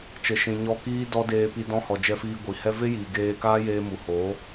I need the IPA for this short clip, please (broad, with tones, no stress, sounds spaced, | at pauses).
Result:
t͡ʃ ə˨ ʃ ĩ˨ ɲ ɔ˧ k iː˦ d ɔ˦ d eː˧ p i˧ d ɔ̃˧ h ɔ˨ d͡ʒ ɛ˧ f iː˧ ɡʷ i˨ h ɛ˦ v e˦ j iː˨ ɡ eː˧ k aː˦ j eː˧ m u˨ h oː˨˦